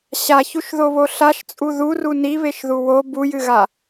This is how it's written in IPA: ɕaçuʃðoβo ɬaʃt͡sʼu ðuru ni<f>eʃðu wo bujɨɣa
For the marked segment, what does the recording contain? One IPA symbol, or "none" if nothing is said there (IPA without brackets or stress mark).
β